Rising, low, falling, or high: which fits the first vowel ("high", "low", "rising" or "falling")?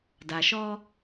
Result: low